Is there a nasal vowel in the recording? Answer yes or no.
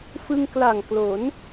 no